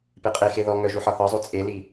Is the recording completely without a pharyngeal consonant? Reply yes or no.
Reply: no